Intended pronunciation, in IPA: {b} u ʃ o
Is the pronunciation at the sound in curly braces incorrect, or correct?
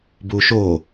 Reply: correct